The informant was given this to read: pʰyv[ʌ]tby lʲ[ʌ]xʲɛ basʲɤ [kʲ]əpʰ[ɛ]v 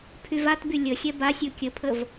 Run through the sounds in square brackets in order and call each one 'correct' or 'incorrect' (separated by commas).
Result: incorrect, incorrect, correct, incorrect